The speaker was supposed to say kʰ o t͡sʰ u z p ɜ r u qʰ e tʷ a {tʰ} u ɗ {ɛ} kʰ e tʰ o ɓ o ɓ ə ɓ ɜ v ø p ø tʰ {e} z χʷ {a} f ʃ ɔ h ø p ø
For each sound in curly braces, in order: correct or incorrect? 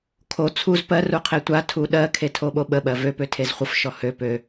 correct, incorrect: ɜ, correct, incorrect: ə

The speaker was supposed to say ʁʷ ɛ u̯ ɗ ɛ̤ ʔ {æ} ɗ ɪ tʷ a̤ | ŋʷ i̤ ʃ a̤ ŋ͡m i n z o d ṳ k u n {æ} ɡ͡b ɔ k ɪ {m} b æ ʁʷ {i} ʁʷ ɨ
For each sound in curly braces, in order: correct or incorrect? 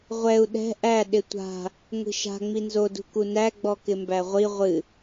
correct, correct, correct, correct

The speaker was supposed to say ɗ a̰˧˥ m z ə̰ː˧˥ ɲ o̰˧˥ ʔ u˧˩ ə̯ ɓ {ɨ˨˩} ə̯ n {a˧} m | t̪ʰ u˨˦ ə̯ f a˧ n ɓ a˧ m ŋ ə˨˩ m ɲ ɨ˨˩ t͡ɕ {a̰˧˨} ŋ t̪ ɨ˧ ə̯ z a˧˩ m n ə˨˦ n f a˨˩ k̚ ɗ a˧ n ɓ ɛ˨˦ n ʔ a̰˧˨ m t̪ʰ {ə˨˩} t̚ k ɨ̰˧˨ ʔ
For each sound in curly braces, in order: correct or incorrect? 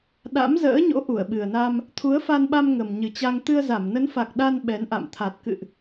correct, correct, incorrect: a˧, incorrect: a˨˩

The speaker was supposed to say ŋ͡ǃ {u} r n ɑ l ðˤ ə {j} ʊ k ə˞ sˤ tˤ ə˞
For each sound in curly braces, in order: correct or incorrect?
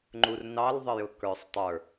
correct, correct

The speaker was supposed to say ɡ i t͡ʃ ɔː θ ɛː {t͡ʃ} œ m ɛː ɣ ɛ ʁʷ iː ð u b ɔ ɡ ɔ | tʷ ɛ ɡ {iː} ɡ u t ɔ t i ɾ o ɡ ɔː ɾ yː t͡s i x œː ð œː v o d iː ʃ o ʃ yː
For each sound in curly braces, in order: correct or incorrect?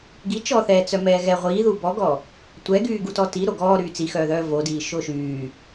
incorrect: t͡s, incorrect: yː

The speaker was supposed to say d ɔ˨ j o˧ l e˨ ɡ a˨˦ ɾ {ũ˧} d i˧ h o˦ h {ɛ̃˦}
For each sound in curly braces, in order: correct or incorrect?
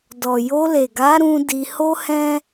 correct, correct

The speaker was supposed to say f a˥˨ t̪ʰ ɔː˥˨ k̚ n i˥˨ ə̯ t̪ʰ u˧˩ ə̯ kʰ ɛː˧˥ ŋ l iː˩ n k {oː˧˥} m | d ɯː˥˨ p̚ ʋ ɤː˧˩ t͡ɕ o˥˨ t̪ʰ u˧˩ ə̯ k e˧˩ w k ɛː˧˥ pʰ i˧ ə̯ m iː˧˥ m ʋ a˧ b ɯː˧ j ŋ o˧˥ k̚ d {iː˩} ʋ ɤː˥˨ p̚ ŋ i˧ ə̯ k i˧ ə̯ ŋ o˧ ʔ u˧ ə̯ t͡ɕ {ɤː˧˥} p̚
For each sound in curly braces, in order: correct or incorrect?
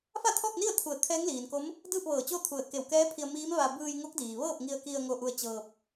incorrect: o˧˥, correct, incorrect: ɤː˧

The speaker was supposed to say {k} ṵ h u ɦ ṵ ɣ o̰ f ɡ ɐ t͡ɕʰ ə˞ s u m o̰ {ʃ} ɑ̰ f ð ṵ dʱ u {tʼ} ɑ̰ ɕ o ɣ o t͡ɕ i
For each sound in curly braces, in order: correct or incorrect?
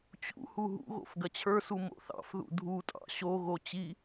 incorrect: t͡ɕ, incorrect: θ, correct

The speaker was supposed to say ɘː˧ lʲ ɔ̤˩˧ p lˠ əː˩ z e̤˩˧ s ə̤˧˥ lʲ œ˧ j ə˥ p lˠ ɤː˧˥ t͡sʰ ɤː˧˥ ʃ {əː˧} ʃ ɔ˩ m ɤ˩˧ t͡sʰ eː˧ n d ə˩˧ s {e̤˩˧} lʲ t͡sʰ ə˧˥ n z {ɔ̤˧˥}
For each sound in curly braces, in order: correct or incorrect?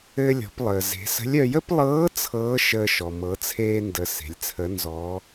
correct, correct, incorrect: ɔ˧˥

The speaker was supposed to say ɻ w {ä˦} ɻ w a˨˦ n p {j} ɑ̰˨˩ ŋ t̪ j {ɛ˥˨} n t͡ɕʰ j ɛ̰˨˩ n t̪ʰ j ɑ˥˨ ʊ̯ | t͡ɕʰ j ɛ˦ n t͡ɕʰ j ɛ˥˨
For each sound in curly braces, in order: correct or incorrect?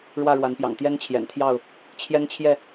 incorrect: ä˥˨, correct, incorrect: ɛ˦

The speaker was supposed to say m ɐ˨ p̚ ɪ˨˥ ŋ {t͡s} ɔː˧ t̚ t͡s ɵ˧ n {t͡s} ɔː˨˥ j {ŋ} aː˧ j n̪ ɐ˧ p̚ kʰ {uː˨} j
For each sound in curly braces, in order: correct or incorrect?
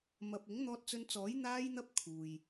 incorrect: n̪, correct, incorrect: n̪, correct

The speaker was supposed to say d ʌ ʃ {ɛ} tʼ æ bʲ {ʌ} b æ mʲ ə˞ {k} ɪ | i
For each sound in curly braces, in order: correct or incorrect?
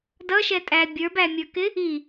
correct, incorrect: ə˞, correct

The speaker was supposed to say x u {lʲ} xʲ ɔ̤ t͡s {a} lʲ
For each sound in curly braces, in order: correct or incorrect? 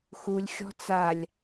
correct, correct

